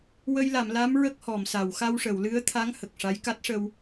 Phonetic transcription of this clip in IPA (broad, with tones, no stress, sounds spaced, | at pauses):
w ə˧ j l a˨˩˨ m l a˧˥ m ɹ ə˦˥ k̚ h ɔ˨˩˨ m s a˨˩˨ w x a˧ w ʂ ə˨˩˨ w l ɨ˧˥ ə̯ t̪ʰ a˧˥ ŋ h ə˨˩ k̚ ʂ a˧˥ j k a˦˥ t̚ ʂ ə˧ w